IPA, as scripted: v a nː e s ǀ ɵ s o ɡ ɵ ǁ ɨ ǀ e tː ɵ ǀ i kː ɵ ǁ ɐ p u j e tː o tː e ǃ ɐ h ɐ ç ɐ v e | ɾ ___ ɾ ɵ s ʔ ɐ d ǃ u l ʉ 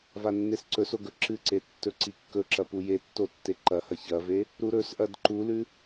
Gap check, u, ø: u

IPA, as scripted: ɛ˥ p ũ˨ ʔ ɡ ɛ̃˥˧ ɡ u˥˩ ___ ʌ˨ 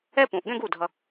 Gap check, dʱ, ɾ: dʱ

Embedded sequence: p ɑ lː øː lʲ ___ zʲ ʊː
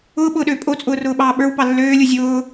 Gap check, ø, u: u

